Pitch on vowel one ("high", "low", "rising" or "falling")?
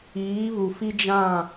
rising